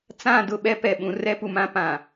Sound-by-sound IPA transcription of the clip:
t͡sã˦˨ dʊ˦˨ɓɛ˦ pɛ˨ɓũ˨ rɛ˦pu˨mã˦ pã˨

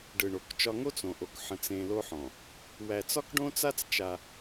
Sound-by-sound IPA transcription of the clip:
ɖɯ˨ɳo˨˦kt͡ʃɒ˦ ŋo˦t͡sõ˨ʔo˨k ħə̃˦t͡sẽ˦ lo˦ħɔ̃˨ | wæ˨t͡sɒ˦kɖõ˦t͡sa˦t͡s t͡ʃa˦

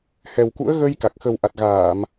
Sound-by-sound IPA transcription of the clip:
hɛ˨˩wkṵ˧˥ə̯ ɣə˧j ka˨˩k̚ xə˨˩wʔa˨˩t̚ɣaː˧˩˨m

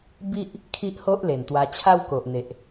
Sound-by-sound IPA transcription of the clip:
bi˦ʔ | kʰi˦ʔho˦ʔle˨˩nt̪wa˧ t͡ɕʰa˦wko˨ʔn̪e˨ʔ

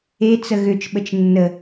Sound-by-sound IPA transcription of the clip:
e t͡səɣʏt͡ʃɓət͡ʃ nːə

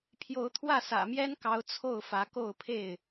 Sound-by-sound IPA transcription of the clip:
pʰjo˨˦ʊ̯t̪ʰwä˥˨ sä̰˨˩mjɛ˦nkɑ˨˦ʊ̯ t͡sʰo˥˨ʊ̯fä˨˦ko˥˨ʊ̯ pʰe˥˨ɪ̯

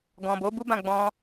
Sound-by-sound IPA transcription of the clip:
ɡɔ̃˨bo˨˦bu˦bã˦˨ ɡ͡bɔ̃˧

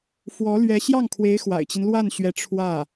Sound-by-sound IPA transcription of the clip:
fwɔ˧˥lɥɛ˧˥ ɕjɑ˥˩ŋkʰwe˧˥ɪ̯ xwa̰˨˩ɪ̯t͡ɕi˦n lwa˥˩nɕɥɛ˧˥ ʈ͡ʂʰwä˥˩

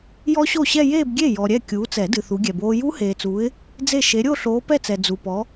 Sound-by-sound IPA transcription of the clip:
jɔ˦˥ɕo˥˩ɕɛ˥˧ jeː˥˧bɡʲe˥˩ jɔ˨ɾʲɛ˥˩ kʲuː˨˦t͡sɛ˨˩˦dɨ˨ θu˨˦ɡʲɛ˨boː˦˥ ju˦˥heː˨t͡suː˨˦ɪ̯ | d͡ze˥˩ ʃe˨˦ɾʲo˥˧ɬoː˨˦ pɛ˥˧t͡sɛ˨ d͡zu˨pɔ˨˦

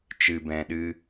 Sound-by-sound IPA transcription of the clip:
t͡ʃɨ˨ bɛ̃˨ɗɨ˧

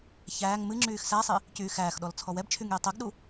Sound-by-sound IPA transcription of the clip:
çæːŋ mɨŋ͡ǁyːx sæsˤi | cyːxæːxɗɔl t͡sʰɔwɛbt͡ʃʰyŋ jitˤɛɡɗu

